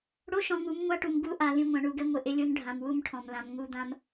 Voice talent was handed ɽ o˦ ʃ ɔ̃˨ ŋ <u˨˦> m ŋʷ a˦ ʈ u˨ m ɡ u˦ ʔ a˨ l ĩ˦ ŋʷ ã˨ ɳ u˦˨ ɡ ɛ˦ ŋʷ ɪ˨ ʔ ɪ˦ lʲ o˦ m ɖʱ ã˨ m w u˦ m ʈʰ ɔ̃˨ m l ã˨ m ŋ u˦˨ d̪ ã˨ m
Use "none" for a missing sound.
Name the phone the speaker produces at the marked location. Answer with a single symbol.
u˨˦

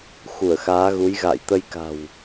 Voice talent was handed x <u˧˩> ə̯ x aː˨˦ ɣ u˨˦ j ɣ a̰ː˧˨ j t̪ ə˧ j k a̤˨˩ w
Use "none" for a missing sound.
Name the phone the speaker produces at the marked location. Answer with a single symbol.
u˧˩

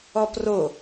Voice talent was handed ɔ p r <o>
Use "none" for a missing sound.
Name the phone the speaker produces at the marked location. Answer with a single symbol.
o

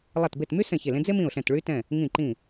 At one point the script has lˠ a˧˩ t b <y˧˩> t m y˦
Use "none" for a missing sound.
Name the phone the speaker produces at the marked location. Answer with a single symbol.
e˧˩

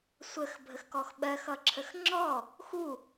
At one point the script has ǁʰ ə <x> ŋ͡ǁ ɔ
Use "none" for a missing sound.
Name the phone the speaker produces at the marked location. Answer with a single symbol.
x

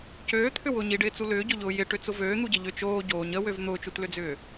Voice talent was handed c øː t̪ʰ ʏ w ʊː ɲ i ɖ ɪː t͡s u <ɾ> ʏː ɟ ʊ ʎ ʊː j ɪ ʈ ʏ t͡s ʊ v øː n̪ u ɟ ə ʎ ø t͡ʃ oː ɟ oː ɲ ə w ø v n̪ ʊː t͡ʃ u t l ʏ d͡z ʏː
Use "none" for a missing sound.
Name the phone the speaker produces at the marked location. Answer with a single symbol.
l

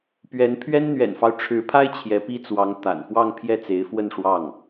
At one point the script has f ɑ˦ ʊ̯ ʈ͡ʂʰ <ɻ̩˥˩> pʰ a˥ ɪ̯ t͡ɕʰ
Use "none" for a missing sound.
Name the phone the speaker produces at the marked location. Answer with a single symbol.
ɻ̩˧˥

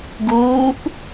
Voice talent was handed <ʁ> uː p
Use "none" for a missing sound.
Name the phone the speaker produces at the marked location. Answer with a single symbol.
ɡ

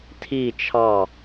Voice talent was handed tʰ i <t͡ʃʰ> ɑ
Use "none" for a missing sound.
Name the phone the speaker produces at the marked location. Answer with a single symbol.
t͡ʃʰ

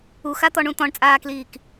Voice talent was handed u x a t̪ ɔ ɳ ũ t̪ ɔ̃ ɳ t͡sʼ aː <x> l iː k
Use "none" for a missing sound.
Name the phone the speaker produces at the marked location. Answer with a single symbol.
k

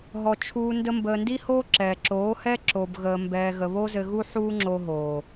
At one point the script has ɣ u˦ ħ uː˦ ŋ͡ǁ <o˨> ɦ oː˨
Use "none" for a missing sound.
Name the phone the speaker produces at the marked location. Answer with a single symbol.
o˧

